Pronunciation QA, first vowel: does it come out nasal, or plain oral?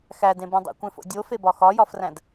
oral